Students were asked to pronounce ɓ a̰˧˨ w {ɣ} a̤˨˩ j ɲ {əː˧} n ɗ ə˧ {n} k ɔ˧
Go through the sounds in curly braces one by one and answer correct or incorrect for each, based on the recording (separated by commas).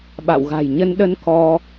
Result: correct, incorrect, correct